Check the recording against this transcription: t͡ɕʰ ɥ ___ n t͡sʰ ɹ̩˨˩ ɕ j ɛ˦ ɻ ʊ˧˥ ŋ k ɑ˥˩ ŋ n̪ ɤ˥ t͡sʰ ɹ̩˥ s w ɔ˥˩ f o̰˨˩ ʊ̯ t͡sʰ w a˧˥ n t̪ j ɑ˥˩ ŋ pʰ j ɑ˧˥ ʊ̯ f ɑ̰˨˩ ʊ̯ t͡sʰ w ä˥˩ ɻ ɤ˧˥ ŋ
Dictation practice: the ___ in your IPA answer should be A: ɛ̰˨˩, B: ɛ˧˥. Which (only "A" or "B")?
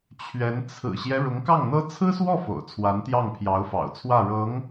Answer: B